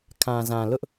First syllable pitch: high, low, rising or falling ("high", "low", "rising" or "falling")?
low